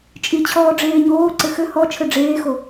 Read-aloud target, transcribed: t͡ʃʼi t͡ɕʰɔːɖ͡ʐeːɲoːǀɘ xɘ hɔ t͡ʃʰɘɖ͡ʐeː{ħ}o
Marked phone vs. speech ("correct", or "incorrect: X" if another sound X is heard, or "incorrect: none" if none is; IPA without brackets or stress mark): incorrect: x